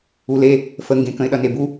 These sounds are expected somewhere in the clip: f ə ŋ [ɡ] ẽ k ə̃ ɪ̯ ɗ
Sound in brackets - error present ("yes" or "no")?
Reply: no